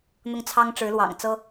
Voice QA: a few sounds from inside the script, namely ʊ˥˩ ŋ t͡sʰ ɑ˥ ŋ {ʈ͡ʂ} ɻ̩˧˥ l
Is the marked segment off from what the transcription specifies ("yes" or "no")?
no